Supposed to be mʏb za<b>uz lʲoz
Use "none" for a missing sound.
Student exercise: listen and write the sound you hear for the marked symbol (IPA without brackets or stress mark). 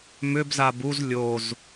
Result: b